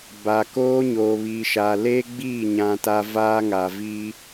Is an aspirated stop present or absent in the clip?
absent